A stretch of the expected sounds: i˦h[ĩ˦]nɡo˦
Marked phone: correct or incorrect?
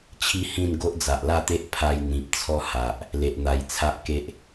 incorrect: ĩ˥˧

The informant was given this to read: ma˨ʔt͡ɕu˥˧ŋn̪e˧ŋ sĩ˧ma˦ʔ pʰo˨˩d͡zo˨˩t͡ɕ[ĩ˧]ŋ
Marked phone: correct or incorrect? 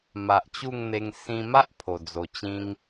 incorrect: ĩ˦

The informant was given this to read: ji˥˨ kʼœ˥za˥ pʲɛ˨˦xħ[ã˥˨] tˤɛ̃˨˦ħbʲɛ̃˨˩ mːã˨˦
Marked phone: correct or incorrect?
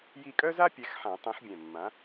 incorrect: ã˨˩˦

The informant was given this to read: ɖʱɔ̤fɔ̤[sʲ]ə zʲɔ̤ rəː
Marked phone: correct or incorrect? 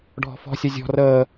correct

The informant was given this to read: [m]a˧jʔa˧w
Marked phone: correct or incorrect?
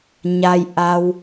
incorrect: ɲ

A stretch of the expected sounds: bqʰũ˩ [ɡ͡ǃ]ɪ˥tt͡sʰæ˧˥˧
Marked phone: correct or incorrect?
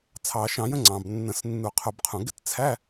incorrect: ɡ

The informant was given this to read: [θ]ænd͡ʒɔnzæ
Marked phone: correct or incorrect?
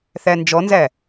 correct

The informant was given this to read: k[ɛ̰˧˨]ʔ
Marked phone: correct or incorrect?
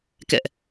correct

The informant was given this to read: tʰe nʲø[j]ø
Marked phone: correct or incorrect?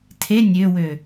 incorrect: w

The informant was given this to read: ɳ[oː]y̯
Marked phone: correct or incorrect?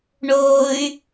correct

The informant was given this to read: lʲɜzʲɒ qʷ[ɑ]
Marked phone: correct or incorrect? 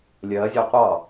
correct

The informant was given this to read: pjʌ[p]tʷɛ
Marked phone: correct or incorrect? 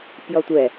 incorrect: none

